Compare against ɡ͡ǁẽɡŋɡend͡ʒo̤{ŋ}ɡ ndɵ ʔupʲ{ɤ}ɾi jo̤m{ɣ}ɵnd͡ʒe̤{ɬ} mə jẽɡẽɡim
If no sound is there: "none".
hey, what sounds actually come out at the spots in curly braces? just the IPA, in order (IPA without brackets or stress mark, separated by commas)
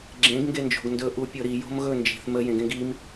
none, ɤ, ɣ, θ